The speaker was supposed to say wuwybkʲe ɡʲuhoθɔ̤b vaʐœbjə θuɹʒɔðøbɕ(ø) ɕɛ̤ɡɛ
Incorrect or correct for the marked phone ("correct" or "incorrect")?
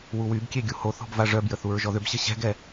incorrect